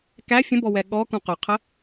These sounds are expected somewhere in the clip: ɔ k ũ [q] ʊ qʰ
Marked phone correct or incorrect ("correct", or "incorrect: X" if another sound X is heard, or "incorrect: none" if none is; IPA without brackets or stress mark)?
correct